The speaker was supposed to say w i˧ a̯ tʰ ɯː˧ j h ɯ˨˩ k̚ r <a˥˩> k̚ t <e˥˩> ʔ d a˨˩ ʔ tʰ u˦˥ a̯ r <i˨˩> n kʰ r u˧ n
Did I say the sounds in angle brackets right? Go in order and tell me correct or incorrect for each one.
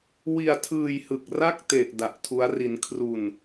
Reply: correct, incorrect, incorrect

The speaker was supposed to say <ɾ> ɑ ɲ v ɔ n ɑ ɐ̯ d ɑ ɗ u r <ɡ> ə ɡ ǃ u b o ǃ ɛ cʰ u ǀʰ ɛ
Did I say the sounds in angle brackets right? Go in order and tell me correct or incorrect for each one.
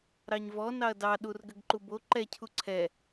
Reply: correct, correct

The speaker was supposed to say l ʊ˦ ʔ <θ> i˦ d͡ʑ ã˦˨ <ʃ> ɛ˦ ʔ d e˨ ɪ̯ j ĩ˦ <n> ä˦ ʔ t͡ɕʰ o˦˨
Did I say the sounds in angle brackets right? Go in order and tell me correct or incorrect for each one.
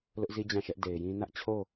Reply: incorrect, correct, correct

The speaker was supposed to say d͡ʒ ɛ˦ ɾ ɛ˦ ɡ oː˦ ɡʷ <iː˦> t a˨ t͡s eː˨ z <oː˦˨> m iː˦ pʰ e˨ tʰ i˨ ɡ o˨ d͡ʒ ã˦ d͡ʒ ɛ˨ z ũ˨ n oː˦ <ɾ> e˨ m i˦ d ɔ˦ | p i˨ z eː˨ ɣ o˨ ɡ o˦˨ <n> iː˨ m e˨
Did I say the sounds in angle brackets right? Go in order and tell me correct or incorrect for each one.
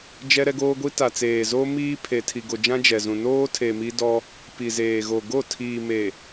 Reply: incorrect, incorrect, incorrect, incorrect

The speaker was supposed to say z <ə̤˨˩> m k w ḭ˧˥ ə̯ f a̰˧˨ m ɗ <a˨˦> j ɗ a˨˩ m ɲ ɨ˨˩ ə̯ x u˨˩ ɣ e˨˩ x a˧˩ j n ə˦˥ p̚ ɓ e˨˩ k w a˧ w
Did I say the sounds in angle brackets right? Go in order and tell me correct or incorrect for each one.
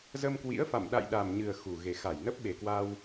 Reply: incorrect, incorrect

